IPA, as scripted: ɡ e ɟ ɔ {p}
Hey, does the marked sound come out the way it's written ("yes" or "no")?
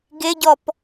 yes